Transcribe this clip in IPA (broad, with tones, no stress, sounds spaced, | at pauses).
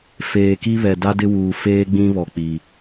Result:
f eː˨ k i˦ β ɛ˨ d a˦ d ɪ˦ w uː˨ f eː˦ ɡ͡b ĩ˦ β ɔ˨ k͡p i˨